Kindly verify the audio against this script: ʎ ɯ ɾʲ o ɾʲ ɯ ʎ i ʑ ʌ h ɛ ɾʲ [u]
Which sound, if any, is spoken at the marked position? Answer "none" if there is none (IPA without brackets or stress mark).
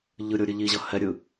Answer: ɯ